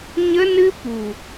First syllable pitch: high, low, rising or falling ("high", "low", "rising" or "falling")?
high